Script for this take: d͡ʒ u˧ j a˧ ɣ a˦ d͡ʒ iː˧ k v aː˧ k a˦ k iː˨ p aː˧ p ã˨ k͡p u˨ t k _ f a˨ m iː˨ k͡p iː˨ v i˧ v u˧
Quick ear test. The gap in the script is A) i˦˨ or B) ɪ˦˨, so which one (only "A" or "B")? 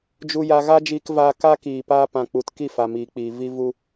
A